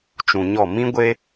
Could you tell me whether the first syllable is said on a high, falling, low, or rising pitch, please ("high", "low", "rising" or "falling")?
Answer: low